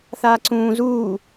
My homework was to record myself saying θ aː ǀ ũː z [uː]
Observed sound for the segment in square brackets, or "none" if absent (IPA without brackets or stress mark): uː